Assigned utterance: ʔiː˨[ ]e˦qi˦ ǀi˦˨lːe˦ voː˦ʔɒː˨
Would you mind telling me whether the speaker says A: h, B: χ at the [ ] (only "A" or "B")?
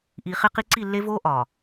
B